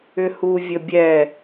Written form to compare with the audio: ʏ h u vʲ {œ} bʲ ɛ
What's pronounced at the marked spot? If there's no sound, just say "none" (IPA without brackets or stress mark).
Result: ə